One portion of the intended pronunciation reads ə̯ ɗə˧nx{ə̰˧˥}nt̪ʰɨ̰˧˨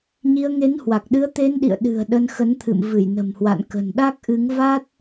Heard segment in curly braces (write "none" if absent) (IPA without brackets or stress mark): ə˨˦